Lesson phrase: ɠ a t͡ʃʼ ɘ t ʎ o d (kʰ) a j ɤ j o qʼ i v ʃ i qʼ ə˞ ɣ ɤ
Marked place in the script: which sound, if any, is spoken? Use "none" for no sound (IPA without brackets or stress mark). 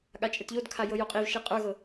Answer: kʰ